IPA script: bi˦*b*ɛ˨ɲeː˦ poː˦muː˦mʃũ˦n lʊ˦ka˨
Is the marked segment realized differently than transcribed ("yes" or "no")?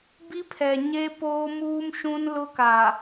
yes